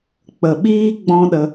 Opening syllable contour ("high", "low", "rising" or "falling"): low